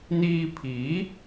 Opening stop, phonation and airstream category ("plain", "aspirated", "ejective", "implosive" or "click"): aspirated